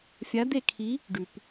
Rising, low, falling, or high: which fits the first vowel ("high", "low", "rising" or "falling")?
rising